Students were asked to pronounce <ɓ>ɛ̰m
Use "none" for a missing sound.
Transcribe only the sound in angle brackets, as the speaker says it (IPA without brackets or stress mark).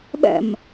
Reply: ɓ